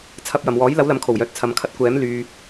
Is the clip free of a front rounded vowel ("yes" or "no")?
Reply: no